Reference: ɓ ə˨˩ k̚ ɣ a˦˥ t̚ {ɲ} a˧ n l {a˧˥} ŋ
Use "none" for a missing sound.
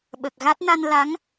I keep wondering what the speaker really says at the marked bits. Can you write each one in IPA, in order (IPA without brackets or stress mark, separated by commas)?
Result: n, a˧˥